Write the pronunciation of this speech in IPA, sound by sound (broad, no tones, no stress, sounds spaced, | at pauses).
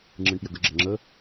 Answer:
ŋ͡ǁ ɨ ɳ p j ə ɡ ə ɡ͡ǁ ə ŋ͡ǁ ə